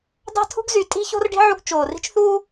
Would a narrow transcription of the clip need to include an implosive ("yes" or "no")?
no